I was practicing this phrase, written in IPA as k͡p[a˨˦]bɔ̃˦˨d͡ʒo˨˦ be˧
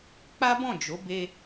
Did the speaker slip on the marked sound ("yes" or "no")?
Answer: yes